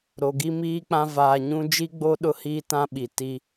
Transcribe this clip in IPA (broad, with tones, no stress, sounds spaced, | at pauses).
ɾ o˨ ɡ i˦ m iː˦ k͡p ã˦ v aː˨ ɲ ũ˦ d͡ʒ i˦ ɡ͡b o˦ ɗ ʊ˦ h iː˦ t ã˦ ɓ i˨ t i˦